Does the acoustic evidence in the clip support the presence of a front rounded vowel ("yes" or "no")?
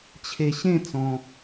no